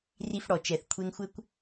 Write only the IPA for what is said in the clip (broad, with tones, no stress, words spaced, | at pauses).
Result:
ri˧fɽɔ˩ t͡ʃɛ˩θkʷʰe˧ŋ xʷɘ˥kʷ